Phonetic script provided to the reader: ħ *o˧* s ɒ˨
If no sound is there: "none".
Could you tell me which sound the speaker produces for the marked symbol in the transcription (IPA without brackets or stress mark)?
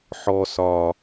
ɔ˧